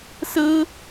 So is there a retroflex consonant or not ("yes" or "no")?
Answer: no